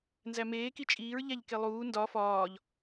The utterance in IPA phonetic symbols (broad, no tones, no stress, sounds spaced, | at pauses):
n z æ m eː k i t͡ʃʼ iː ɹ ʎ æ ʎ k e lˠ uː n d ɒ f ɒː ʎ